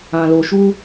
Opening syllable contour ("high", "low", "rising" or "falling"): low